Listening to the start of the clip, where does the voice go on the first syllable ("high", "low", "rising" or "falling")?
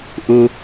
low